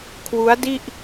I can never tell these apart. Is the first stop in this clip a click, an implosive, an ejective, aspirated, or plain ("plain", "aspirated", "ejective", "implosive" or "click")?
aspirated